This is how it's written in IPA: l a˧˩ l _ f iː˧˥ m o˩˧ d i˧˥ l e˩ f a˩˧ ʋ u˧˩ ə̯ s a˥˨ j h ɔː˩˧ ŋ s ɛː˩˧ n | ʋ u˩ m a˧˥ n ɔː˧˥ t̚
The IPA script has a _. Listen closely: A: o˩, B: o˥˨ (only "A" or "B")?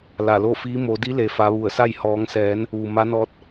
B